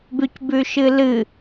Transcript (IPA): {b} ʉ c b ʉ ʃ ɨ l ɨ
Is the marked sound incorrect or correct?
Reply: correct